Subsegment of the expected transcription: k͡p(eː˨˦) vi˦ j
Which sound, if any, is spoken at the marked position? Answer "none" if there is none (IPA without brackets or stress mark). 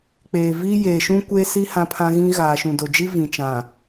eː˨